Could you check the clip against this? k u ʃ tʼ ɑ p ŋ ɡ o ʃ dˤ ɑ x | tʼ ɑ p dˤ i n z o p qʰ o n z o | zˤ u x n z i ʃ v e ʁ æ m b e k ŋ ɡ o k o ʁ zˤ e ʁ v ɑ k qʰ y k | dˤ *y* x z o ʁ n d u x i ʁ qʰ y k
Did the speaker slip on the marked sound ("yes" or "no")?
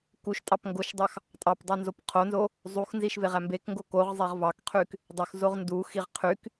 yes